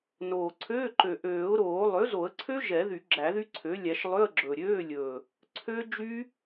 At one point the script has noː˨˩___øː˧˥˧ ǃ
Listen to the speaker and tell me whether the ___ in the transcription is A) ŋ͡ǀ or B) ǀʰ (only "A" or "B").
B